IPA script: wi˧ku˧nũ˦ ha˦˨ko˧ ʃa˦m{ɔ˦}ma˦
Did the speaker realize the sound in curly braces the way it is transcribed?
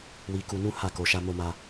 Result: no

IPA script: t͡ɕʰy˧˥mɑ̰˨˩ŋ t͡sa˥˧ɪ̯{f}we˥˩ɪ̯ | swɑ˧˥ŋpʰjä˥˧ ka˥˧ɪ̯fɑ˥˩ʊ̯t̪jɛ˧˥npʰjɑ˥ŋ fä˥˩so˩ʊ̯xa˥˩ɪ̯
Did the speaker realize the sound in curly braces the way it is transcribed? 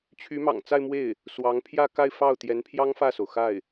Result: no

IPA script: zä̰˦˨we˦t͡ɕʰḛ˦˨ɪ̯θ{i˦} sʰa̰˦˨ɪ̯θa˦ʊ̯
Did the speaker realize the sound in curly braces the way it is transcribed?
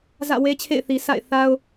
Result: no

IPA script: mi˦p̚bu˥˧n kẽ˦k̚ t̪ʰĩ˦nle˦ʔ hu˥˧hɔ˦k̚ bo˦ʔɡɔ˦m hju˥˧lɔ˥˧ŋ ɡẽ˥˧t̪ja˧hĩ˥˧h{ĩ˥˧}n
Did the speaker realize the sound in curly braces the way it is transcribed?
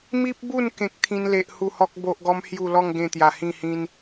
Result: no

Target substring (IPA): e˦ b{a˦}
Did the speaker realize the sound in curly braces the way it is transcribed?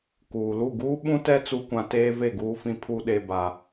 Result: yes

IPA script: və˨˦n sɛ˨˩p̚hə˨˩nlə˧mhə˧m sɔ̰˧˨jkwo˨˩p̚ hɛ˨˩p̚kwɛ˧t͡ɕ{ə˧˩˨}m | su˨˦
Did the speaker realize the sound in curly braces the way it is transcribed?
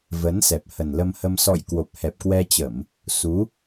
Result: yes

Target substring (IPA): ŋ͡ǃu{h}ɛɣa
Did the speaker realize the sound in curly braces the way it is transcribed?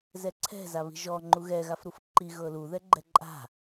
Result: no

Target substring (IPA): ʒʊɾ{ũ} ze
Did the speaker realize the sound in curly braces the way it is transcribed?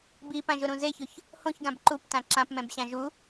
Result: yes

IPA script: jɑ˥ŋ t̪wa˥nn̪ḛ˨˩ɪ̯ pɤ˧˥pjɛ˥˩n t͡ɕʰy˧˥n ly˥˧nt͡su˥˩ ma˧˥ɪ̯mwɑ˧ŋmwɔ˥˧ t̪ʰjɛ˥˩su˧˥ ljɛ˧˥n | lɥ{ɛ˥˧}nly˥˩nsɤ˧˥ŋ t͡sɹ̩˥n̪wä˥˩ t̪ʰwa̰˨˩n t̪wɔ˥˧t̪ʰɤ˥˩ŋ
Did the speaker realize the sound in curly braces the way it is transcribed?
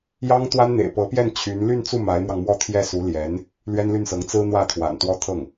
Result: no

